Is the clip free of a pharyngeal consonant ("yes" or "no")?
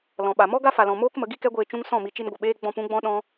yes